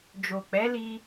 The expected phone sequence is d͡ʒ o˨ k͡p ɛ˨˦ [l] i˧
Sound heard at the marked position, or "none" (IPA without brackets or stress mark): l